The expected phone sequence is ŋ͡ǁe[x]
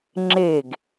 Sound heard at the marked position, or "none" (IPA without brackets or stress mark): ɡ